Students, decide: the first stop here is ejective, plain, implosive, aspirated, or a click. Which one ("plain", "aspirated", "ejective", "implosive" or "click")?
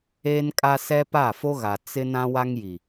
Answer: ejective